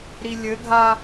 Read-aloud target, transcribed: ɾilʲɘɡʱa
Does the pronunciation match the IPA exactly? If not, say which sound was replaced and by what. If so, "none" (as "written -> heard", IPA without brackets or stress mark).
none